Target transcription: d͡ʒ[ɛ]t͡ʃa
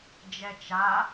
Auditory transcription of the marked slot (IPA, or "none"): ɛ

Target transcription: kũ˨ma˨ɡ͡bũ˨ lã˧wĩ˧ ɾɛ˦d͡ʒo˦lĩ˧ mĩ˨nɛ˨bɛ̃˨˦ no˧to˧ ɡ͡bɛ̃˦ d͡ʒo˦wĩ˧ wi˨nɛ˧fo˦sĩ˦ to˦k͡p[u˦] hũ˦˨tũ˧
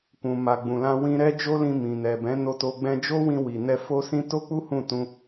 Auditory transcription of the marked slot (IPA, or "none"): u˦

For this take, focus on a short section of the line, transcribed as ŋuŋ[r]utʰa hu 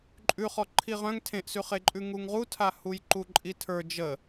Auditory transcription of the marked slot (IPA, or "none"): ʁ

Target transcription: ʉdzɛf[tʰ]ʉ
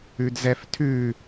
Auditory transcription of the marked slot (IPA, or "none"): tʰ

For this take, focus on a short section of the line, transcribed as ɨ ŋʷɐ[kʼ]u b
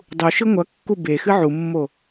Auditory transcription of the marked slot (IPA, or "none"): kː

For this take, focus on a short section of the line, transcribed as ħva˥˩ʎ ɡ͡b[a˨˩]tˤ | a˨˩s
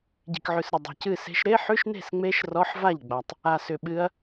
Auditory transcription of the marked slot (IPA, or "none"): a˨˩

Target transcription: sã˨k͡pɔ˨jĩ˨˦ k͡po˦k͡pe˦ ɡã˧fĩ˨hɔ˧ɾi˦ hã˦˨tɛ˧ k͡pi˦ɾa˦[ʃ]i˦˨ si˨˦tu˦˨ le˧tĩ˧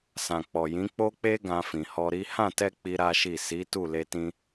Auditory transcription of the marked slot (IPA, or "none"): ʃ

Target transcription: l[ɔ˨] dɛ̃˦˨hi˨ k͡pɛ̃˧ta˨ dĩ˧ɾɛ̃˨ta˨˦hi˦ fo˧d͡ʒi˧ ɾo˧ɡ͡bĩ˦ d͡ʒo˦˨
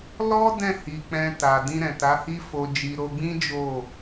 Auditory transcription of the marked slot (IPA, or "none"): ɔ˦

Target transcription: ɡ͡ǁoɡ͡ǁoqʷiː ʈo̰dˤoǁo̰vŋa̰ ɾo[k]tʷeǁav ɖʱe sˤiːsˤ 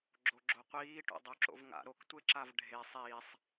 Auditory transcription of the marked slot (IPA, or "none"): k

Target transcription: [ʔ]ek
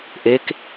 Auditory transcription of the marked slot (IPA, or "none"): ʔ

